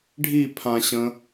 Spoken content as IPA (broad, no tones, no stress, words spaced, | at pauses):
ɖʱipʰãɕə̃